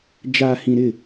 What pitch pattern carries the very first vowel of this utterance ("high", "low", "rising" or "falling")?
low